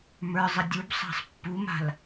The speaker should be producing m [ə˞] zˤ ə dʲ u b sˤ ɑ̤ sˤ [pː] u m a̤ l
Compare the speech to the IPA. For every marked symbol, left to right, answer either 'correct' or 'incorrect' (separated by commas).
correct, correct